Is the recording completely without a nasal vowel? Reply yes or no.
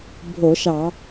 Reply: yes